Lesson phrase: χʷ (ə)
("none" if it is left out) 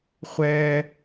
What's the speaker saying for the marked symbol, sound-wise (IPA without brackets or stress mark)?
ɛ